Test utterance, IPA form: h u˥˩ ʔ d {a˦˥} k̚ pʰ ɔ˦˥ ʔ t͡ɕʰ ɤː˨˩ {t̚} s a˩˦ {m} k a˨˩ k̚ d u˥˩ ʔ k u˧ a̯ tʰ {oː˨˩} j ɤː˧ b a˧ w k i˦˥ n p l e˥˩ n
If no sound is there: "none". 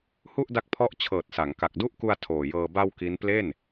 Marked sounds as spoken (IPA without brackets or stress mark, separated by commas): a˦˥, t̚, ŋ, oː˨˩